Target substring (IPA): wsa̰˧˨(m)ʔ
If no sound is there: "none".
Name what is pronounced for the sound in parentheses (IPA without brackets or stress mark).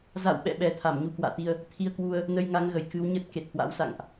ŋ